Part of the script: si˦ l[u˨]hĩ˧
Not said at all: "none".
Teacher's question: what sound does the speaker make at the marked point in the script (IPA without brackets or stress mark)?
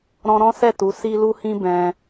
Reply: u˧